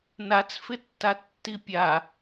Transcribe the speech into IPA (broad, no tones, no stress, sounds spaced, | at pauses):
n a t͡s f ɪ tː a tː i pʲ a